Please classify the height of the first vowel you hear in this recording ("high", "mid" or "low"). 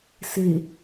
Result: mid